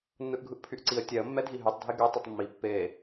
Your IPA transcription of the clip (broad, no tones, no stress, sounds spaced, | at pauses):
nː ɯ ʔ ɡʱ ɯ ʔ pʰ y ʔ ǀ i ə̯ tʲ ɛ ə̯ mː ɛ dʱ i ɦ y tˤ dʱ e ɡ y tˤ y tˤ mː i pː e